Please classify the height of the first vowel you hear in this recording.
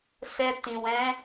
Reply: mid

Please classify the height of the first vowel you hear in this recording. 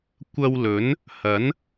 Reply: low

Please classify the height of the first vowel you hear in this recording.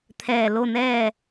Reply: mid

